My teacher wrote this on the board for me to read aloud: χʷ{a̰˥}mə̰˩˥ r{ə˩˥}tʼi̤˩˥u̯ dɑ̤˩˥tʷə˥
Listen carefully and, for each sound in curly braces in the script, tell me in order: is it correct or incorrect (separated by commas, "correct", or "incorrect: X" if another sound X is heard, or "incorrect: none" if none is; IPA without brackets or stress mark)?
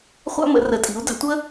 correct, correct